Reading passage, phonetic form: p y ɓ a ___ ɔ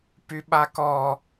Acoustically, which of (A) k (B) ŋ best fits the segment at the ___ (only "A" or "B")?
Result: A